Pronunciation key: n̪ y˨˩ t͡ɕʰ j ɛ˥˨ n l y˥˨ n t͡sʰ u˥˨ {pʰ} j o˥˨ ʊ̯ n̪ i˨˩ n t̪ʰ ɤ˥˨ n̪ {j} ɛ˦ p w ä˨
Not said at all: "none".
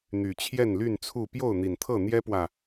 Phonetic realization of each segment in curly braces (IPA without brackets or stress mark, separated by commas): p, j